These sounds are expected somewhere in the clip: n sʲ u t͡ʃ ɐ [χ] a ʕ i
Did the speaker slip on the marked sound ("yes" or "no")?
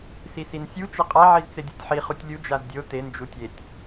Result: yes